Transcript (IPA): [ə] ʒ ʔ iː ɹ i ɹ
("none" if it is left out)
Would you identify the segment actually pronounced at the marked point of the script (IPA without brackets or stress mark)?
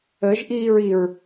ə